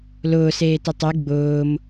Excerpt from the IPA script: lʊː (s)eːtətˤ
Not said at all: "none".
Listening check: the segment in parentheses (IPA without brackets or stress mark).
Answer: s